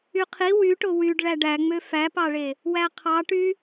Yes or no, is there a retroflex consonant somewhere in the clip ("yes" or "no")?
yes